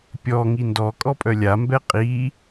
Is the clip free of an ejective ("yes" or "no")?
no